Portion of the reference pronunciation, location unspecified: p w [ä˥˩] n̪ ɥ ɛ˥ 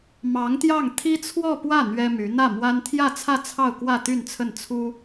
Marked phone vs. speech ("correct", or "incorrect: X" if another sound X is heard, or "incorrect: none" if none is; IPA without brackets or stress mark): correct